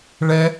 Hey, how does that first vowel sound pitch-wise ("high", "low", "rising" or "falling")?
high